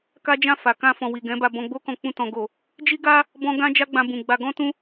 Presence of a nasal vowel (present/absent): present